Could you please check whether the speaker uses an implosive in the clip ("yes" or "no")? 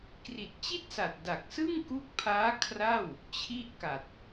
no